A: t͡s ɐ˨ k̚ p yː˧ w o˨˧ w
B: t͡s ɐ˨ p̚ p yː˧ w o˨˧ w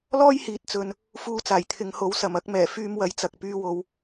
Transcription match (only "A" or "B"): A